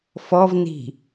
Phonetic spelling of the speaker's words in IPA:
fɔvni̤

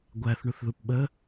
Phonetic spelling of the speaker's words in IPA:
ɡʷæθ ɳuθðupɓə

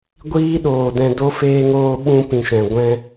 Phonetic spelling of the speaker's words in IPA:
ɡʷiː˦ɗoː˨dɛ̃˧do˦ feː˧ŋoː˧ɓũ˧ pĩ˨ʃɛ̃˨ ɡʷɛ̃˧

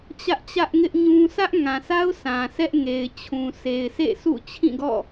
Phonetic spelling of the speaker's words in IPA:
t͡ɕä˦ʔt͡ɕä˦ʔŋɪ˦ʔ ɲũ˦ sʰä˦ʔŋã˨sʰa˦ʊ̯ sã˨sɛ˦ʔŋe˨ɪ̯ t͡ɕʰũ˨sʰe˨ɪ̯ sʰḛ˦˨sʰṵ˦˨ t͡ɕʰĩ˦˨ɡɔ̰˦˨

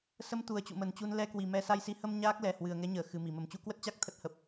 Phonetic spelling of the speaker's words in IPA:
sə˧m t̪u˨˩ə̯t͡ɕṵ˧˨mə˨˩nt͡ɕu˧n lɛ˧kwi˨˩mɛ˧ sa˧jsi˨˦ hə˧m ɲaː˦˥k̚lɛ˨˩ hwɨ˨˩ə̯ŋɛ˨˦ɲəː˧˩ xɨ˨˩mi˧˩ mə˧˩mt͡ɕu˧ kwə˦˥t̚t͡ɕa˦˥k̚ t̪ʰə˦˥t̚hə˨˩p̚

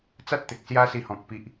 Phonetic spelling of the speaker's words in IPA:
t͡sa˦t̚t̪e˨k̚ sja˦si˧hɔ̃˨k̚ pi˨ʔ

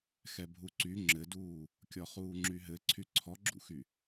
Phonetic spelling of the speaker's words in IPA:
xɛbʱuǀy ŋ͡ǁɘduː | kʲɔχuːŋ͡ǁyɦɘ ǀʰyǀʰɔɡ͡ǁṵxy

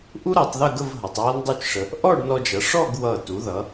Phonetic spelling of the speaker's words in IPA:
ʔu˥ɾʌ˩˧tˤðə˥˧ɡə˥˧v ɦʌ˩˧tˤɹʌ˥ndˤu˥˧t͡ʃʂə˧ | ʔɔ˥˧ɖnɔ˧d͡ʒʌ˩˧ ʂɔ˥˧ɡ wʌ˧˩ tu˩˧ðʌ˩˧

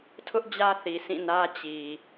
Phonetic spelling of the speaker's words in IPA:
tʰʊ˦ʔ d͡ʑä˦θi˨sʰĩ˦˨nä˦ t͡ɕi˨

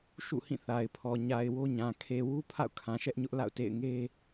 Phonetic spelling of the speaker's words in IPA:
ʃṵ˦˨hĩ˦˨ θa˨ɪ̯pʰɔ˨ ɲa˨ɪ̯ wo˦ɲã˨ kʰe˨wu˦ pʰa̰˦˨ʊ̯kʰã˨ ʃɛ˦ʔɲʊ˦ʔla̰˦˨ʊ̯ tḛ˦˨ɪ̯ŋe˦

